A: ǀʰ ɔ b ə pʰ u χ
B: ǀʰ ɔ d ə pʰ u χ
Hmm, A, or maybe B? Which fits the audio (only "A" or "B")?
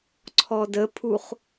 B